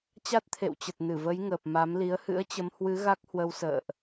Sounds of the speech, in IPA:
t͡ɕ a˦˥ t̚ t̪ʰ ḛ˧˨ w t͡ɕ ə˨˩ t̚ n ɨ˧˩ v ə˨˦ j ŋ əː˨˩ p̚ m a˨˦ m l i˨˦ ə̯ h ɨ̰˧˥ ə̯ t͡ɕ ə˨˦ m h w ɨ˨˦ ɣ a˦˥ k̚ h w ə˧ w s ə̰ː˧˨ ʔ

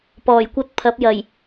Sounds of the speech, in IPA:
p ɔː˨˩ j kʷ ɐ˥ t̚ pʰ ɐ˨˥ p̚ j ɐ˨˩ j

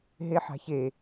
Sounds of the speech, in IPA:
ɦ e ħ a̤ ç e

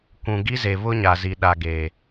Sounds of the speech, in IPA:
kʷ ũ˨ ɡ i˦ z e˨ β ʊ˦ ɲ a˨ z i˨ ɗ a˨ ɡ e˨

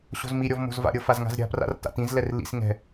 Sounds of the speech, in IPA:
ɕ o̤ z m i ɾʲ ɔ v m o̤ z v a̰ ɾʲ ɤ f a z ŋ a̤ z ɾʲ a̤ p r a̰ r t a̰ t ĩ z l ɛ r l ḭ s ŋ ɛ̤

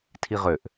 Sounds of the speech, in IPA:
tʰ i ʁ ø ʔ

